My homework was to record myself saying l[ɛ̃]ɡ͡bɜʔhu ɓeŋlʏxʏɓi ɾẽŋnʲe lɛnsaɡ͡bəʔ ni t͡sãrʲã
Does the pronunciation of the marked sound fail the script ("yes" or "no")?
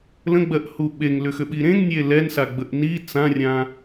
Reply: yes